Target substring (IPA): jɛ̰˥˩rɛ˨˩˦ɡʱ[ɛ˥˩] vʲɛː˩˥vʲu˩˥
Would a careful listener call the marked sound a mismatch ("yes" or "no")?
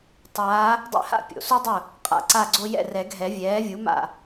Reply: yes